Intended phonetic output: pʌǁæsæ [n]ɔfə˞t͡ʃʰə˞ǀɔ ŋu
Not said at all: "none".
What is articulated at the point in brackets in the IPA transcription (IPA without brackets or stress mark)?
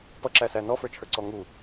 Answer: n